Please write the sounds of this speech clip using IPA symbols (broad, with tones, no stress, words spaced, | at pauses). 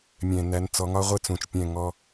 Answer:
mʲɛ̃˩næ˩˧nt͡sɔ˩˧ŋɒ˧ ʁʷɪ˧ t͡sũ˩t͡ʃpʲɛ̃˧˩ŋɔ˧